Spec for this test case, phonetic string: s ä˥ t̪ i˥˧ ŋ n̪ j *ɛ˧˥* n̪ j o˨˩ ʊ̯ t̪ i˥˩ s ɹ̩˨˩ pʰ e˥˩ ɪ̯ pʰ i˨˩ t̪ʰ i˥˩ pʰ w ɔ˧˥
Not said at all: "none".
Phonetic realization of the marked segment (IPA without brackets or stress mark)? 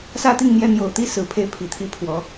ɛ˥˩